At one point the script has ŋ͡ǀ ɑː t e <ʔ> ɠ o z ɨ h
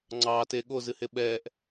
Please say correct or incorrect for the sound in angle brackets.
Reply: incorrect: none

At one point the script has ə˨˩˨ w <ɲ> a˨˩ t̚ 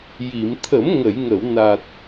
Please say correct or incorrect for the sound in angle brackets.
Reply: incorrect: n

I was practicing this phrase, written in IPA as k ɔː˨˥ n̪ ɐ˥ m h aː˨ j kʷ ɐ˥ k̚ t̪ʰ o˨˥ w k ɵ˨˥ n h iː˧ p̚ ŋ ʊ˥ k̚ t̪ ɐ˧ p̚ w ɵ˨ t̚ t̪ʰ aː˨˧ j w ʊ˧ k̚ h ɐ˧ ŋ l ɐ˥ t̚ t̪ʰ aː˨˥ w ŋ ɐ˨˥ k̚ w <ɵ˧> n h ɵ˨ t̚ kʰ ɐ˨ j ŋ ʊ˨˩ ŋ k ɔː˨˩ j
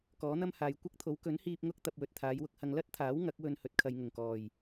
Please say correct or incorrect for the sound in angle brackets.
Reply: correct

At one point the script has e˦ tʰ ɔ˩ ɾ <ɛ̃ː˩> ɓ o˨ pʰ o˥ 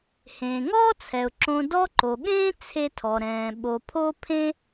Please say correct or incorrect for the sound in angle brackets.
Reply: correct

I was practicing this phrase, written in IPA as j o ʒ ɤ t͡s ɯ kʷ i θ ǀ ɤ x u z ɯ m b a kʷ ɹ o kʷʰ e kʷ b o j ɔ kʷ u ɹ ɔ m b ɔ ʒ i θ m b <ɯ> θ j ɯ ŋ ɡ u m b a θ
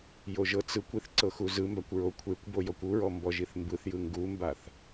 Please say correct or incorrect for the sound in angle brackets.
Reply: correct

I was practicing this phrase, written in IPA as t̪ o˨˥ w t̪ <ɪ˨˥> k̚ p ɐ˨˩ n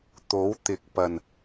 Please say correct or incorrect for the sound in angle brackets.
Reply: correct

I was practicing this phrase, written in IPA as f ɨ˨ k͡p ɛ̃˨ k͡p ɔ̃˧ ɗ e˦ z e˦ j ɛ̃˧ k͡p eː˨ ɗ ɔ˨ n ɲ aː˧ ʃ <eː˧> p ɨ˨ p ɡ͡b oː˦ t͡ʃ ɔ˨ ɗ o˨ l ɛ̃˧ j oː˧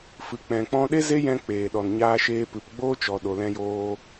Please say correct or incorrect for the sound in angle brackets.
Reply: correct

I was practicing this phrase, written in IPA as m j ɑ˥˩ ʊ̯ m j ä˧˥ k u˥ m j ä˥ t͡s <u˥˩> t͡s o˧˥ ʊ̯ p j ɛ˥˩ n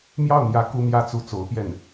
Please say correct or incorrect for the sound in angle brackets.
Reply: correct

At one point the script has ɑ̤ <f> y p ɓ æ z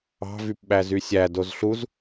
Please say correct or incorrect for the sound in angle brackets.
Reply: incorrect: v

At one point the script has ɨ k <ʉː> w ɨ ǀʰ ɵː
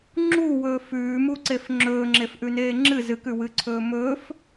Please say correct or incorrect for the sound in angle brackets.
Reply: incorrect: ʉ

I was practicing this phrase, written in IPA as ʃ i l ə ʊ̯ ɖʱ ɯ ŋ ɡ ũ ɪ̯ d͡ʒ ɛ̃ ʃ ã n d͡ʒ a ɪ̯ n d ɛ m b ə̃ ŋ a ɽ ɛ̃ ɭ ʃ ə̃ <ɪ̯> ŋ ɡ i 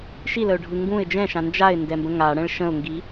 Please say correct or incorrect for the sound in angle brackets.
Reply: incorrect: ʊ̯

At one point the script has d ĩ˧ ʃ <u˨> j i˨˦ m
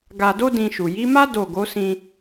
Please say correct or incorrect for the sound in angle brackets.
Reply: correct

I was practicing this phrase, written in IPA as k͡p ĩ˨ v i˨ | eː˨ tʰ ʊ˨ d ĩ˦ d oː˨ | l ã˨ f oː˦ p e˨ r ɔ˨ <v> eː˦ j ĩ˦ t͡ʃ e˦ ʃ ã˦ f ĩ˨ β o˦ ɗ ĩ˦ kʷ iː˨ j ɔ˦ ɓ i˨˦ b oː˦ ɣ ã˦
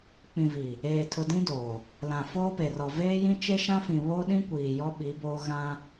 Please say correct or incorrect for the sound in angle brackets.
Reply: correct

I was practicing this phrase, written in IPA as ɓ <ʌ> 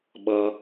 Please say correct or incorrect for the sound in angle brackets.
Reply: correct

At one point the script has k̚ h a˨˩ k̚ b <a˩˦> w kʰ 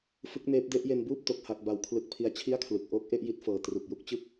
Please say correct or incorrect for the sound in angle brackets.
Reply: correct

